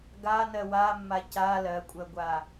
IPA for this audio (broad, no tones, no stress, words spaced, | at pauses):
ɡanɜ wamːa ca lɜkʷʼɜɡʷa